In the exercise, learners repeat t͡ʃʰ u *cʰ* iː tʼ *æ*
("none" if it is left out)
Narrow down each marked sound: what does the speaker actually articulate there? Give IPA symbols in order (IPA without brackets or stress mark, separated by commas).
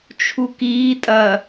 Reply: k, ɐ